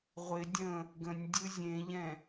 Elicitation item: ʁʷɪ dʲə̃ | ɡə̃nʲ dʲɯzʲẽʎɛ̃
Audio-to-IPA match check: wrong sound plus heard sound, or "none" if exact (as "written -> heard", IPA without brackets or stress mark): none